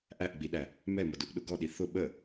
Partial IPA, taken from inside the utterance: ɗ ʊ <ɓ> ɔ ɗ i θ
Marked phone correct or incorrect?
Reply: incorrect